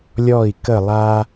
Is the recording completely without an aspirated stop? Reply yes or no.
yes